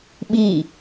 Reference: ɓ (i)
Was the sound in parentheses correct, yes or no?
yes